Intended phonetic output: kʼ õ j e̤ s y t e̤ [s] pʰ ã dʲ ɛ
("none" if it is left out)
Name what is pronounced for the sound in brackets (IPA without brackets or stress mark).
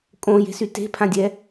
none